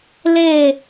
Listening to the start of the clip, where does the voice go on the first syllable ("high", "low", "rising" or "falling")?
falling